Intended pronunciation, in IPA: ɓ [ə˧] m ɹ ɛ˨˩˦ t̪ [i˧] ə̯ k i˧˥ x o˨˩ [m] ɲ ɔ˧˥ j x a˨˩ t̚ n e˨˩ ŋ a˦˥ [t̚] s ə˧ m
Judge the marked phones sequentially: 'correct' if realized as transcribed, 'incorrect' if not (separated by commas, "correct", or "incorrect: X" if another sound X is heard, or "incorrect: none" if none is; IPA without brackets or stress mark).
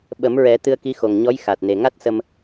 incorrect: ə˨˩˦, incorrect: ɨ˧, incorrect: ŋ, correct